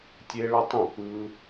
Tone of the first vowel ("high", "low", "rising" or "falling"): high